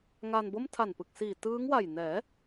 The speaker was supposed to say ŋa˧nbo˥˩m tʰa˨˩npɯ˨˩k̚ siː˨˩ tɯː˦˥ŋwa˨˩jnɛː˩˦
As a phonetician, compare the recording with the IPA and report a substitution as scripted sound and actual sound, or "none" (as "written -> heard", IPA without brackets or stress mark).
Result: none